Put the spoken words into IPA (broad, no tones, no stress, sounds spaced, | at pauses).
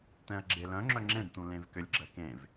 t̪ ɛ̃ ɐ̯ ɡ͡ǁ e l œ̃ ŋ͡ǁ œ ŋ͡ǁ ẽ ɖ t̪ ũ l ẽ v k ʏ lʲ ɡ͡ǁ ɜ k ẽ v